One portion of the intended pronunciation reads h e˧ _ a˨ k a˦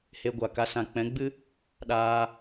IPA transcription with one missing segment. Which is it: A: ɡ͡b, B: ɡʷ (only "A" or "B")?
B